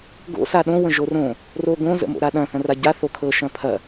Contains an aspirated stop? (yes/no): yes